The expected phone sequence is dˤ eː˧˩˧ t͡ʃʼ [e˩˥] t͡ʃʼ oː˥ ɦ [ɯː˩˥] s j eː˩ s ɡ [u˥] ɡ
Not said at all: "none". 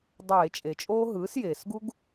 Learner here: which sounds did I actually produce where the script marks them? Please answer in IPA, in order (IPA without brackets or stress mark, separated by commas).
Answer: e˩, ɯː˩˥, u˥